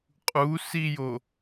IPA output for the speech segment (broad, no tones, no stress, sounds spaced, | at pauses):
qʼ u s i j o